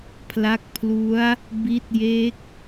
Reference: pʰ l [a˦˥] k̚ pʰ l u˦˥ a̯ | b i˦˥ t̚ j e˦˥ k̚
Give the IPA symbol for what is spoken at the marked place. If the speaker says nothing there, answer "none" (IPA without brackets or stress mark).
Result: a˦˥